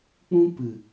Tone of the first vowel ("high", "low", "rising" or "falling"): high